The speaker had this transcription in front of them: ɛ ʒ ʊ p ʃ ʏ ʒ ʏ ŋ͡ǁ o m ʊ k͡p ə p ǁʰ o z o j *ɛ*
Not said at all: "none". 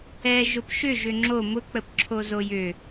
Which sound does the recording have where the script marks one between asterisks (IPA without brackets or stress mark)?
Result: ʏ